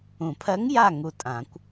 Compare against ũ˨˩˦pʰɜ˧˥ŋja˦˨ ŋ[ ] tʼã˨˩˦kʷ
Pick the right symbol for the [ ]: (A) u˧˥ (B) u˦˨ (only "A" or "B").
B